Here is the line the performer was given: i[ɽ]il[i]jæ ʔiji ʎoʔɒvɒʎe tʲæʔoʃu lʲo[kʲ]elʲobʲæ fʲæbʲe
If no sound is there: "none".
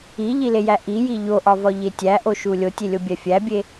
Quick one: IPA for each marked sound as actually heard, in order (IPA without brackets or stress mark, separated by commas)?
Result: ʎ, e, tʲ